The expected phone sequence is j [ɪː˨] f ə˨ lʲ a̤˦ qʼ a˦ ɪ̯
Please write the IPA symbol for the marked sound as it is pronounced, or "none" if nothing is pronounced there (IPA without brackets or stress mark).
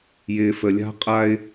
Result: ɪː˨